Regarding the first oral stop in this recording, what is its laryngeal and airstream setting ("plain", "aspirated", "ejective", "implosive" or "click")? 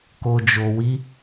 plain